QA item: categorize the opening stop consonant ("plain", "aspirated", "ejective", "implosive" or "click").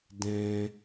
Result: plain